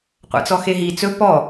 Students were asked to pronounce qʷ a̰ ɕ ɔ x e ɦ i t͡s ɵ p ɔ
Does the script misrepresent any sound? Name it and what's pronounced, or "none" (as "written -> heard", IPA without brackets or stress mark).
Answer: ɕ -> t͡s